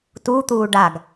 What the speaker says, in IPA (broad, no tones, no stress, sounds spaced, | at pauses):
t u t̪ uː ɖ a ɡ